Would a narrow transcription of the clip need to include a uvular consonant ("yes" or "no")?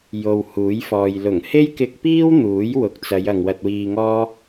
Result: no